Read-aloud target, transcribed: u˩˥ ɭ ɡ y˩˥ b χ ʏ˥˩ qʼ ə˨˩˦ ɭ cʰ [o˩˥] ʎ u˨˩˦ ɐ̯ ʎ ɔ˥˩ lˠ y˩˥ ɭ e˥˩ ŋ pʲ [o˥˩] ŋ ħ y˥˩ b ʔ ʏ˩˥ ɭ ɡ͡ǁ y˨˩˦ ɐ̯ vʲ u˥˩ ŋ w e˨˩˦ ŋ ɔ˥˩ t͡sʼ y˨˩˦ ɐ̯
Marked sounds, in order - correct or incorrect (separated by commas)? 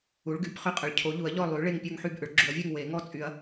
correct, correct